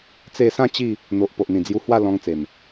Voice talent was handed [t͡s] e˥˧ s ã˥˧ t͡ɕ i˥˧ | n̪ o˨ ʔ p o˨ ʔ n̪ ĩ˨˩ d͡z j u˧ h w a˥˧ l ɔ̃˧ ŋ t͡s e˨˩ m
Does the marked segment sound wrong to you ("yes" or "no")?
no